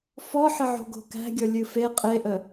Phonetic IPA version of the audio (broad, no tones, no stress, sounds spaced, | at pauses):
f ɔ ħ ə ʕ o̤ ɡ o̤ k æ̤ ɡʲ ɔ lʲ ɨ f e qʼ e ʔ ə